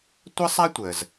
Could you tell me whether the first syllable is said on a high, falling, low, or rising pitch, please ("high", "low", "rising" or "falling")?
high